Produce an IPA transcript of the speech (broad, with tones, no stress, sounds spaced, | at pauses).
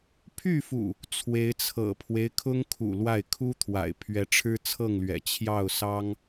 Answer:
pʰ y˥˨ f ṵ˨˩ | t͡sʰ w e˨˦ ɪ̯ t͡sʰ ɤ̰˨˩ pʰ w e˦ ɪ̯ kʰ ʊ˦ ŋ kʰ ṵ˨˩ l w a˥˨ ɪ̯ kʰ u˦ t̪ʰ w a̰˨˩ ɪ̯ pʰ ɥ ɛ˨˦ ʈ͡ʂʰ ɻ̩˦ t͡sʰ ɤ˥˨ ŋ l ɥ ɛ̰˨˩ t͡ɕʰ j ɑ˥˨ ʊ̯ s ɑ˦ ŋ